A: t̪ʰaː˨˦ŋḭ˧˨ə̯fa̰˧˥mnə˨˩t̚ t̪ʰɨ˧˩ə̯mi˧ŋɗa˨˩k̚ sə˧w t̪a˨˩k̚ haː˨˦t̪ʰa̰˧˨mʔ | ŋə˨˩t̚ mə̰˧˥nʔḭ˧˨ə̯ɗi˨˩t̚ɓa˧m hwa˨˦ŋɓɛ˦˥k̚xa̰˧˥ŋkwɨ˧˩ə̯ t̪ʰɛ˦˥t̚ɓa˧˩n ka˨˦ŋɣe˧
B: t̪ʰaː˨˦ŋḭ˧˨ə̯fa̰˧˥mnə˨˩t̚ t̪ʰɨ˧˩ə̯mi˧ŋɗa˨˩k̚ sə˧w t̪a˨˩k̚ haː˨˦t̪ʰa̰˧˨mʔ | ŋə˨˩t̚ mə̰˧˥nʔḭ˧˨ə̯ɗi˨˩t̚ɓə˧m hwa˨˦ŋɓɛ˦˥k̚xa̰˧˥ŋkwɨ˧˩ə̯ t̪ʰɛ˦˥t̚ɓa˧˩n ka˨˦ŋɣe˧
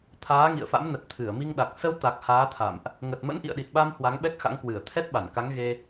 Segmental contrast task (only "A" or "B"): A